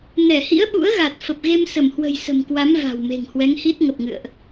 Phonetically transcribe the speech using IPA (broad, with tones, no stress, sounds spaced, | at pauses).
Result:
n ɛ˧˩ h ḭ˧˥ ə̯ ɓ ṵ˧˥ ə̯ ɣ a˨˩ t̚ f ə˨˩ p̚ ɣ e˧ m s ə˧˩ m h w ə̤˨˩ j s ə̤˨˩ m k w a˨˦ m v a̤˨˩ w m e̤˨˩ ŋ h w ɛ˨˦ ŋ h i˦˥ t̚ ŋ ə˨˩ p̚ ŋ ɨ̰˧˨ ə̯ ʔ